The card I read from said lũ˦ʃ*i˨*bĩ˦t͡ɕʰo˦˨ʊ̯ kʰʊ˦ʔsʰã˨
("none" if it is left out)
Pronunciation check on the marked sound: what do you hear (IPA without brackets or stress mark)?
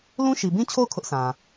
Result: i˨